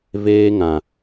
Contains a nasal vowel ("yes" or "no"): yes